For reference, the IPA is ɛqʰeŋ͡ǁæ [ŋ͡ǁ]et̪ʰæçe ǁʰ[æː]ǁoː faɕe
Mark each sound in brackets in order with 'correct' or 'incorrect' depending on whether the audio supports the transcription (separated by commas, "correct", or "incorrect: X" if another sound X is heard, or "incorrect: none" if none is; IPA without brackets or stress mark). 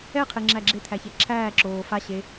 incorrect: ɡ͡ǁ, correct